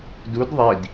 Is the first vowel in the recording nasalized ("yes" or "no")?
no